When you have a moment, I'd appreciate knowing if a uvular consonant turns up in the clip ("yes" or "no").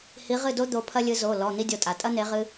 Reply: yes